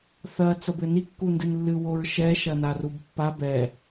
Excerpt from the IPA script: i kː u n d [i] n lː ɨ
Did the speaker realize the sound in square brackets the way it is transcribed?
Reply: no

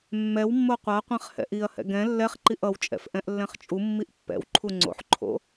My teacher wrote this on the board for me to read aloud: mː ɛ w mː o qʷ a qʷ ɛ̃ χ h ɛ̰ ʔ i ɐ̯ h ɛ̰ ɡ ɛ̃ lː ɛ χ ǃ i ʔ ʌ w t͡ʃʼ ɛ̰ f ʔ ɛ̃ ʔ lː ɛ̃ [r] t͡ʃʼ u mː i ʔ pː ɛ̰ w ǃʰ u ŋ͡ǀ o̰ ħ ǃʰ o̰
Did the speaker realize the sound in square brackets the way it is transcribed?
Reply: no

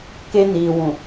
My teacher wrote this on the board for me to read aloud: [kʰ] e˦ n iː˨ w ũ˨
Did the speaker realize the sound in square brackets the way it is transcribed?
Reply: no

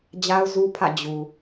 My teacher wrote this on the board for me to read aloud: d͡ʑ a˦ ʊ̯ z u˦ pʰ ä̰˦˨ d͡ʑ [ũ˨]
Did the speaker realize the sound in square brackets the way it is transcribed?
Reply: no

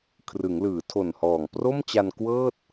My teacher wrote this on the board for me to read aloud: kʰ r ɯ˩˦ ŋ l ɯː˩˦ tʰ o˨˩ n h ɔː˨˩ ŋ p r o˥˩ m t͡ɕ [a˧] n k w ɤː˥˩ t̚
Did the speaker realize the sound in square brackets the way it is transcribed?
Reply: yes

